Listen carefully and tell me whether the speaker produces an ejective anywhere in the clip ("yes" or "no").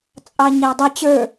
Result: yes